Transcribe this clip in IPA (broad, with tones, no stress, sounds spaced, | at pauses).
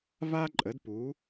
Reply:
v a˥ ǃʼ ə˨˥ d p u˨˥